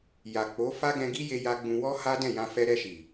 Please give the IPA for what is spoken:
j a˨ k͡p o˨˦ f a˦ ɡ ɛ̃˧ ɡ i˦ j e˧ j a˧ ɡ͡b ũ˧ w ɔ˦ h a˦ d ɛ̃˦˨ j ã˧ f ɛ˧ ɾ ɛ˧ ʃ i˨

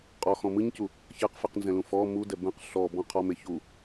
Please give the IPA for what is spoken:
qʼ ɔ x ɔ̃ m ɯ ɲ c u | ç ɛ q f ɯ q n z ɛ̃ l ũ f ɔ m u d ɛ b ɛ̃ q ɬ ɔ b ɔ̃ qʰ ɔ m e ç u

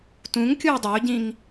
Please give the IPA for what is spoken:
t ũ ŋ kʲ u ɪ̯ dˤ ø ʊ̯ ɟ ĩ ŋ

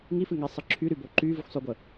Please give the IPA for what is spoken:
ŋ i f ɨ ŋ ɛ sˤ ə ǁʰ y ɾ y b o ǃ y v ɨ xʷ sˤ ø ɡʷ ə

